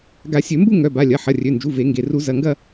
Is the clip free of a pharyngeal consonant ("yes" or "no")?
no